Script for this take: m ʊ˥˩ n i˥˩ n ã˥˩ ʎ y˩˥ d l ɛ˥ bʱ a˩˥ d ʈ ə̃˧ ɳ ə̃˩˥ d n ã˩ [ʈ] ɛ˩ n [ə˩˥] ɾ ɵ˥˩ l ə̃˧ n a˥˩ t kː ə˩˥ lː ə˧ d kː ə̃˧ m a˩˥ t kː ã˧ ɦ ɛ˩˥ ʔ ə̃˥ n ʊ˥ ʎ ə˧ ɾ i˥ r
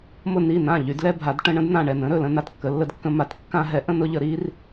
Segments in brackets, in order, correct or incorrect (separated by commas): incorrect, incorrect